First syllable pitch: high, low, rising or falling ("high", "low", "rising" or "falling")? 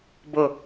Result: falling